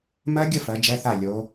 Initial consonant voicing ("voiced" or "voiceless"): voiced